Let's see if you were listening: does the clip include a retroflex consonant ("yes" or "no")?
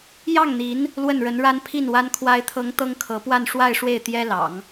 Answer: yes